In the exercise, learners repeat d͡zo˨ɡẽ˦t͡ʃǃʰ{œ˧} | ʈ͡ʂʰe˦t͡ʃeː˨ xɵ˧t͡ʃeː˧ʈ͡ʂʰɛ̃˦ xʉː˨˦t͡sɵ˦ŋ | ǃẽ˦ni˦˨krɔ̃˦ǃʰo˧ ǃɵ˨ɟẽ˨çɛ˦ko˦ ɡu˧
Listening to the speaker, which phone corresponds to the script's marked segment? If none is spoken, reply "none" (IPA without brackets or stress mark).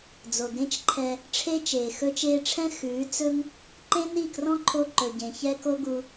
ɛ˧